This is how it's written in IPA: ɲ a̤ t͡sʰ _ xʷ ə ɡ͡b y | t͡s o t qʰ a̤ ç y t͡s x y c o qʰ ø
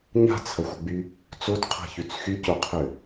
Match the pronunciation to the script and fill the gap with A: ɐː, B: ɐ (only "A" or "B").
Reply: B